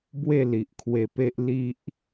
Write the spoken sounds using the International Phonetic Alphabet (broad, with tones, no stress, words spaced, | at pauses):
bwe˥˧li˨ʔkʰwe˧pe˦ʔ li˦ʔ